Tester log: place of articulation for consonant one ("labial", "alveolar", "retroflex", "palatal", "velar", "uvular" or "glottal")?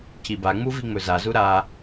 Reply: palatal